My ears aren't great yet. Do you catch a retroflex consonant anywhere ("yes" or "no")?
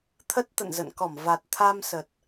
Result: no